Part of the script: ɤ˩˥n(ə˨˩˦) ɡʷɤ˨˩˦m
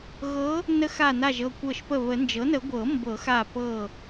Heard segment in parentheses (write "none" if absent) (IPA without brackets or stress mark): ə˨˩˦